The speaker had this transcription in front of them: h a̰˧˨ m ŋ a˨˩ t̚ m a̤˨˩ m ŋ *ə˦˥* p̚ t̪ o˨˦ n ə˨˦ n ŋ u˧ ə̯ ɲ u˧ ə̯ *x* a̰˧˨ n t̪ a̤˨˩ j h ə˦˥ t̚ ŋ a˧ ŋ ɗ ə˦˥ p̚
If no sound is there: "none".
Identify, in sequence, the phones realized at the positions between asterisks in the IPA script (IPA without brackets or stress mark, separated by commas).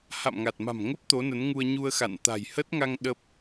ə˦˥, x